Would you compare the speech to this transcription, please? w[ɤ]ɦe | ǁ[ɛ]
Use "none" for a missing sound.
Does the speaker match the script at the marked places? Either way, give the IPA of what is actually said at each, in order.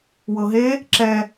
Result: ɤ, ɛ

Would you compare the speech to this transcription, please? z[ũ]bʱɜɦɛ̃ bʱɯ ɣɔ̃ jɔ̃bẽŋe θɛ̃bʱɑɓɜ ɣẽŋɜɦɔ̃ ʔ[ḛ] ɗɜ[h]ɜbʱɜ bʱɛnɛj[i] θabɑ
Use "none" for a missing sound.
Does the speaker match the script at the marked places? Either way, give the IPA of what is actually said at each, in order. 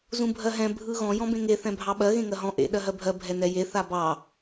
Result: ũ, ḛ, ɦ, e

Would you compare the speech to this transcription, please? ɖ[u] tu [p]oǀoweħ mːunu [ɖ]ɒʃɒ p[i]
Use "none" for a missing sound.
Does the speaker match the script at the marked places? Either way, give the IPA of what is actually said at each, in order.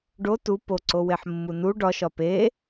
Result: o, p, ɖ, e

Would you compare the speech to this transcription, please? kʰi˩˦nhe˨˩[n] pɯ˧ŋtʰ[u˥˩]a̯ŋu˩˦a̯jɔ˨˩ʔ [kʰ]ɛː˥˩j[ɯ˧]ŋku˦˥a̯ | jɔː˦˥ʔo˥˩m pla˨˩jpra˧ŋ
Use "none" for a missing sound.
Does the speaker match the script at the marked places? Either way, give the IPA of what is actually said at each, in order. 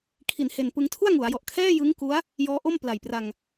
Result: n, u˥˩, kʰ, ɯ˦˥

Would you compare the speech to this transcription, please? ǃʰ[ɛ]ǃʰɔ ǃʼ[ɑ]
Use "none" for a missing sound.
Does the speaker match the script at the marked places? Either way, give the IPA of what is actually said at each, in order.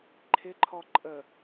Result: ɪ, ə

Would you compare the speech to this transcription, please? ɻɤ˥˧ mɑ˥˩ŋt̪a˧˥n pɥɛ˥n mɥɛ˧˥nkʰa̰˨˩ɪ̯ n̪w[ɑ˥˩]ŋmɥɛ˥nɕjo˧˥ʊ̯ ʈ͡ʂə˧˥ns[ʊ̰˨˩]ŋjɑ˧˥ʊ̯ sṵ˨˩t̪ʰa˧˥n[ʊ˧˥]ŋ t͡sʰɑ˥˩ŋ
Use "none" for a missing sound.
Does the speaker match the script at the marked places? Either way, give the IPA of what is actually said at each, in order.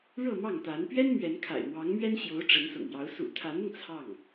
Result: ɑ˧˥, ʊ̰˨˩, ʊ˧

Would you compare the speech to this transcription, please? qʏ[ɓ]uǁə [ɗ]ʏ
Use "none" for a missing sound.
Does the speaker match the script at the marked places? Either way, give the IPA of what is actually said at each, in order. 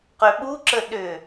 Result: ɓ, ɗ

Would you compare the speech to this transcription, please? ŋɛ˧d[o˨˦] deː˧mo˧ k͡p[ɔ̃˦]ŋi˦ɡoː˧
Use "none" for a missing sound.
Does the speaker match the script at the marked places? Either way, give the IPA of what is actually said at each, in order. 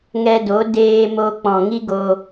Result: o˨˦, ɔ̃˨

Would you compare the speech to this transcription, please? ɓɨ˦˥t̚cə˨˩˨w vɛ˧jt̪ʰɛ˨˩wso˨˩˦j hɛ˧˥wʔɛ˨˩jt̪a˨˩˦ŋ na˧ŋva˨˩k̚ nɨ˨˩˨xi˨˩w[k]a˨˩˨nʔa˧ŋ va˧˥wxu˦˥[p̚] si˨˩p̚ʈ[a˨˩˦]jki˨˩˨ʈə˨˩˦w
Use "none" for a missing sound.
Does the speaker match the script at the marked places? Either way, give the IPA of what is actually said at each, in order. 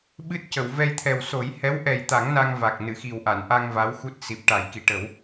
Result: ʔ, t̚, a˨˩˦

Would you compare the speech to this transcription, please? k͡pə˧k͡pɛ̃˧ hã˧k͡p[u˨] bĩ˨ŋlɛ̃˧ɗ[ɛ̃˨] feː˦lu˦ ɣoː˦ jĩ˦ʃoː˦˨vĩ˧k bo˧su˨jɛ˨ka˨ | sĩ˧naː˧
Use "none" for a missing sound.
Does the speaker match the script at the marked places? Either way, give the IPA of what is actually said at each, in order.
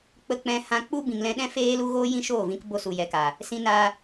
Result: u˦, ɛ̃˦

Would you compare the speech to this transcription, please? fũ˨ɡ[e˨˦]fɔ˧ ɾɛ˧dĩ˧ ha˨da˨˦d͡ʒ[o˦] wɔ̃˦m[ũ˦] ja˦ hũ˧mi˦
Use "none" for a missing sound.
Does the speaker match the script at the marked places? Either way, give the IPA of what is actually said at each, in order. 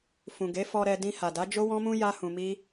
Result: e˨˦, o˦, ũ˦

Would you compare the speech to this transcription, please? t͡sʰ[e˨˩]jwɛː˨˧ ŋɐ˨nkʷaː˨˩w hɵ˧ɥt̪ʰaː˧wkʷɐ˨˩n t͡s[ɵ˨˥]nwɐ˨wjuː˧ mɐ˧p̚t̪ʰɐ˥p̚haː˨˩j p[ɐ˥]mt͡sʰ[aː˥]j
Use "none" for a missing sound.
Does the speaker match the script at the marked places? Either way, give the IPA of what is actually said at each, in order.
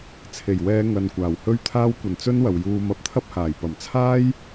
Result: e˨˩, ɵ˥, ɐ˨˩, aː˥

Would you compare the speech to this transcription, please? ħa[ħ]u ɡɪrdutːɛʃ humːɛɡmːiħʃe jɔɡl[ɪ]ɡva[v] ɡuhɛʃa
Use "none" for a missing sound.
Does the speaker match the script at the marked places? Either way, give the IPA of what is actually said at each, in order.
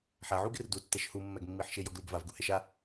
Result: ʕ, i, v

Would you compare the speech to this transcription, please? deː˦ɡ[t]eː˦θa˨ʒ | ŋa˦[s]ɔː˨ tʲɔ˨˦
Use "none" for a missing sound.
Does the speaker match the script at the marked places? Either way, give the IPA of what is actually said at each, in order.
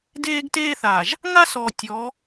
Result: t, s

